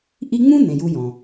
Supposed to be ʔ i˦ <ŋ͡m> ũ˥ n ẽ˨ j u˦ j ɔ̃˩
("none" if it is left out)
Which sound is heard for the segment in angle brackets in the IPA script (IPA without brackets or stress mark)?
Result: ŋ͡m